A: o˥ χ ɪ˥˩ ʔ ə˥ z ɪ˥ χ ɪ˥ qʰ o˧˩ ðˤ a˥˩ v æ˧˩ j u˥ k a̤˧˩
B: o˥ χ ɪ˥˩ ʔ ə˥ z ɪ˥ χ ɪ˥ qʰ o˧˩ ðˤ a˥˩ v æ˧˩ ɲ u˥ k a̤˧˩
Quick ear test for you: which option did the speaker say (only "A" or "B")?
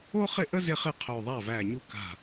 B